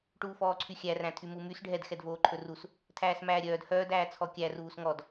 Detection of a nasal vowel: present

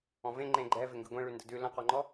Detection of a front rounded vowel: absent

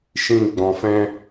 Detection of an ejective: absent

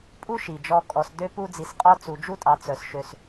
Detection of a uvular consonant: present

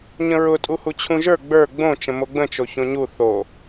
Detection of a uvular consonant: absent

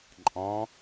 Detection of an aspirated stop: absent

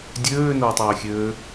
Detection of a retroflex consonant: absent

